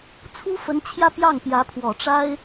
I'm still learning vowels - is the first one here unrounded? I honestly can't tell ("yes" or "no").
no